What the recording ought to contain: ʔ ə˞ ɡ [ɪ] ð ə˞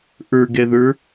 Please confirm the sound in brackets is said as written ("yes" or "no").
no